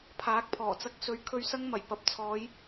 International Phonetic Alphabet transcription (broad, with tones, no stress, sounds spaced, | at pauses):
pʰ aː˨˥ k̚ pʰ ɔː˨˩ t͡s ɐ˧ k̚ s ɵ˨˧ ɥ kʰ ɵ˧ ɥ s ɐ˥ ŋ m ɐ˨˩ j p ɐ˨ p̚ t͡sʰ ɔː˨˧ j